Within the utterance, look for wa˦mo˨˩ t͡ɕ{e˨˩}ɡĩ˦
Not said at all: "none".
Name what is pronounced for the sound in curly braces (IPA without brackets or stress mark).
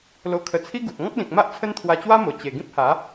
e˨˩